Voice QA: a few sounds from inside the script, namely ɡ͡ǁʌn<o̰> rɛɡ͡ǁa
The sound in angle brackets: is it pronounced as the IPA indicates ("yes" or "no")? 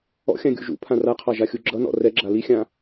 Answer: no